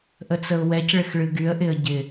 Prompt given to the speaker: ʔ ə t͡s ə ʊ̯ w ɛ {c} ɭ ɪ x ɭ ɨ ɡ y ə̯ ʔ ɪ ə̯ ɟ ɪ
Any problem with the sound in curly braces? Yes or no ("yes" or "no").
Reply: no